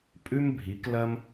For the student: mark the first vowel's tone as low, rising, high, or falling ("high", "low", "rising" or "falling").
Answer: high